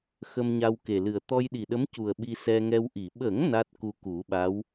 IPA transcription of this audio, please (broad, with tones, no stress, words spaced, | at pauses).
xə˧mɲa˧wke˨˩lɨ˨˩ə̯ t̪ɔ˧jɗi˨˩ɗə˧˥mcu˨˩ə̯ ɓi˧sɛ˧ŋɛ˧wʔi˨˩˨ ɓə˨˩˦ŋ na˦˥t̚ku˧ ku˨˩˦ɓa˧˥w